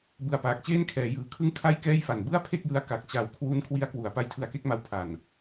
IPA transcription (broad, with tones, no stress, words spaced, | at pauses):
bɯ˨˩a̯paː˨˩k̚ t͡ɕeː˥˩nkʰɛː˩˦jɯː˨˩kʰɯ˥˩ŋ kʰa˥˩jkɛː˥˩jfa˨˩n bɯ˥˩a̯pʰe˥˩k̚jɯ˧a̯ ka˨˩k̚t͡ɕa˨˩w kʰwu˦˥n kʰwi˦˥a̯kwu˩˦a̯ pa˦˥jtʰɯ˧a̯ke˥˩k̚ma˦˥w pʰa˨˩n